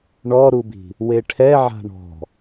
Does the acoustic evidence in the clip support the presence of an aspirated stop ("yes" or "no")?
yes